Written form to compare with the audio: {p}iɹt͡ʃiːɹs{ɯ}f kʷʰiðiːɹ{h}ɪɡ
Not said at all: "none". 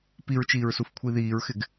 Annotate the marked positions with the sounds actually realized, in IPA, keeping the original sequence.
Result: p, u, x

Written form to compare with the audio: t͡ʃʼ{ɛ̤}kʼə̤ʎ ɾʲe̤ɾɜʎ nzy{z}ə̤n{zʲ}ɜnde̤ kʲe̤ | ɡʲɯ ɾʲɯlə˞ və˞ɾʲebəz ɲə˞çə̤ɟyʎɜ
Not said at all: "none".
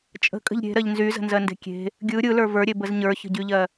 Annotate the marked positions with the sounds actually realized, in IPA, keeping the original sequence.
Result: ə̤, z, z

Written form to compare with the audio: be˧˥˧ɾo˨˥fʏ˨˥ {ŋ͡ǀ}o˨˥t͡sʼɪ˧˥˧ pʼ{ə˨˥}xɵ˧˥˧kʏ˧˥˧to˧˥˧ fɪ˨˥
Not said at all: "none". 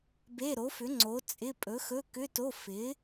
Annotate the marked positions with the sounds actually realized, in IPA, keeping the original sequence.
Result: ŋ͡ǀ, ɵ˨˥

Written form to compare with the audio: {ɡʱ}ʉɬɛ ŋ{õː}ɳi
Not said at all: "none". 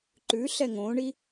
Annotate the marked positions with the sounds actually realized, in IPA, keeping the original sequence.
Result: ǃ, õː

